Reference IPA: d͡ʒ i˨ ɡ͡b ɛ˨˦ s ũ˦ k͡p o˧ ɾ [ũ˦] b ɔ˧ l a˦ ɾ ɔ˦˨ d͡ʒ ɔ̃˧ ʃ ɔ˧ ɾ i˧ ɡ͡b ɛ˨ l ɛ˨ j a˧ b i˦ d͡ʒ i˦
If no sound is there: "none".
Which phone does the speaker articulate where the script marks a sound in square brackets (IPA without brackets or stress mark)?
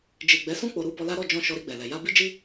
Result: u˦